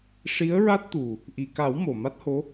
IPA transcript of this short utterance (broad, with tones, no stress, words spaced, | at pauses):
ʂi˧˥ə̯ɹa˦˥t̚t̪u˨˩ | ʔi˨˩ka˨˩˦w mo˨˩ma˦˥t̚ho˧˥